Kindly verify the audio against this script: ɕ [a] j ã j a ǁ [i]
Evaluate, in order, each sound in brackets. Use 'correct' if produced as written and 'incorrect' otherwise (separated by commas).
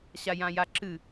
correct, incorrect